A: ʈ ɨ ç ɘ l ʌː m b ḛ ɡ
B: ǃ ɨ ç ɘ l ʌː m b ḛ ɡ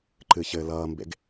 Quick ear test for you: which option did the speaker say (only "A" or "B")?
B